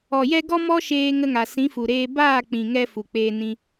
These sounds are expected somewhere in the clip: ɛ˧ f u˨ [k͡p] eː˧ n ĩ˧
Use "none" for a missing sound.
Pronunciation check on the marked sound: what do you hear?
k͡p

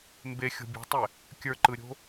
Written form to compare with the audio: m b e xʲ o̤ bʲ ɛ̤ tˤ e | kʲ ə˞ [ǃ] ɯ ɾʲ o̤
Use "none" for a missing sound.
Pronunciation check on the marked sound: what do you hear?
ǃ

